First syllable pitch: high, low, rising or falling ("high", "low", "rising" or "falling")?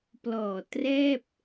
low